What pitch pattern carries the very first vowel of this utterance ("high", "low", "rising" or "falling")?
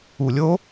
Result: low